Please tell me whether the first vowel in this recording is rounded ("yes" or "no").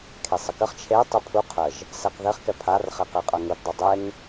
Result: no